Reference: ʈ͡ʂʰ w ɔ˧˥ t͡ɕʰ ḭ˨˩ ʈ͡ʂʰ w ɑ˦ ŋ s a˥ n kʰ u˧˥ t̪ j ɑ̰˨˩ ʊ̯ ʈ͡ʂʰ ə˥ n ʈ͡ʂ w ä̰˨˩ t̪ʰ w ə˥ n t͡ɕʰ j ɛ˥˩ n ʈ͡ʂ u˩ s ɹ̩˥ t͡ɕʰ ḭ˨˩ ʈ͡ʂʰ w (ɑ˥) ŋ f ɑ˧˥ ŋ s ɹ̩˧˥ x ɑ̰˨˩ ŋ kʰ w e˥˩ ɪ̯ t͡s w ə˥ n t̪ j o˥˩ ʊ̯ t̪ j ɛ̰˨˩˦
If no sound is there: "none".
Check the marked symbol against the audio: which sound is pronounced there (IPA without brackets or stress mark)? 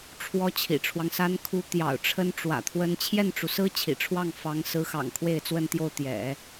ɑ˥˩